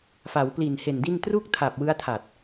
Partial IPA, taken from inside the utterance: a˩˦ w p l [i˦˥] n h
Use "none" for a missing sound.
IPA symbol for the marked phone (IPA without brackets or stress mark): i˨˩